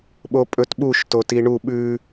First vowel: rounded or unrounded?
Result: rounded